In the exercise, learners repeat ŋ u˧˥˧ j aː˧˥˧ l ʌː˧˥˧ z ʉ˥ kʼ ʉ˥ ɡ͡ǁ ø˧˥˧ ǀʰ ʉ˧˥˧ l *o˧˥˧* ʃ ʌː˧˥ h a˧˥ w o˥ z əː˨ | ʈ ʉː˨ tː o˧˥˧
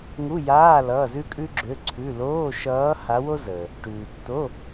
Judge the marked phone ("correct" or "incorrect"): incorrect